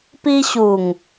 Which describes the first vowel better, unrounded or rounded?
unrounded